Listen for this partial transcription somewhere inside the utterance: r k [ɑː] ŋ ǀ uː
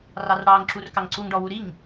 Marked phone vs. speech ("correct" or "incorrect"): incorrect